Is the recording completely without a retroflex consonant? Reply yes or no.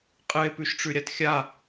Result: no